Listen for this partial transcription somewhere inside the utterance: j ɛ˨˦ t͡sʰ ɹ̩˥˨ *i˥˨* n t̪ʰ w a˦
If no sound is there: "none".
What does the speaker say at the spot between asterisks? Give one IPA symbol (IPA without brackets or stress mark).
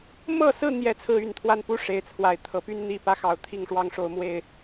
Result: y˥˨